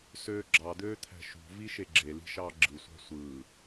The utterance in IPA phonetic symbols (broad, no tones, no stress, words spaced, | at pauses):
søːɡ͡ǁɑd̪øːt̪ʰæ̤ ʃṳ viʃeɡ͡ǁeli̤ ʃɑːɡ͡ǁɯsʷɑ̤ sʷɯː